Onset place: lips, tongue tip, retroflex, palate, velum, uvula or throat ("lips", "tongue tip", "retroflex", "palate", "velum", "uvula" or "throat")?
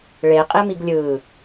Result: retroflex